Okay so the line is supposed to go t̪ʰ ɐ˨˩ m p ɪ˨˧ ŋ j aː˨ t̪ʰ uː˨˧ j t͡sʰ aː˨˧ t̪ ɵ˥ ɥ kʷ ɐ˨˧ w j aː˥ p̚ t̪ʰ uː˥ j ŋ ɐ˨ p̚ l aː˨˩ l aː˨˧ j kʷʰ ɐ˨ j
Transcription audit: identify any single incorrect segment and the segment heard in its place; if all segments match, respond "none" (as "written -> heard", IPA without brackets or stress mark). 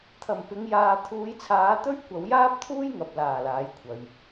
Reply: none